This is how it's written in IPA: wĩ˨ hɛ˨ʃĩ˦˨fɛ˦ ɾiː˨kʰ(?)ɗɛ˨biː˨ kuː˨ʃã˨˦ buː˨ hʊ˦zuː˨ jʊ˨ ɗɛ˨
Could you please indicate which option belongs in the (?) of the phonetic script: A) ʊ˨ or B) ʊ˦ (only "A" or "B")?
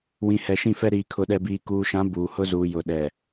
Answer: A